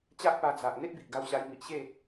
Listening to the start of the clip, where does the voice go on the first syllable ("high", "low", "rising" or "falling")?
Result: high